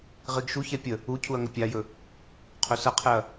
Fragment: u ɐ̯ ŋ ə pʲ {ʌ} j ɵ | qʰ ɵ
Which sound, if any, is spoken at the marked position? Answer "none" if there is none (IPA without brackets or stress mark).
a